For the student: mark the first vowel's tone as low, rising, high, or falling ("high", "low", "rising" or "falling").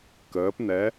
rising